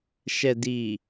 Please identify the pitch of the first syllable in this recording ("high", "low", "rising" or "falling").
low